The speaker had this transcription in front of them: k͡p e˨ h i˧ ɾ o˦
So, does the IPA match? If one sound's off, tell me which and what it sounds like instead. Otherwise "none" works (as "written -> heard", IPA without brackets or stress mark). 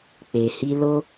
ɾ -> l